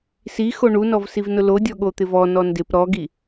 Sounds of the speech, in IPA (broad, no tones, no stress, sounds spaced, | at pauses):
s i x o ɳ u n ɔ v s i v n ʊ l o dʲ ɔ ɠ o t̪ ɪ v ɔ n ɔ n d ɪ p ɾ ɔ ɡ i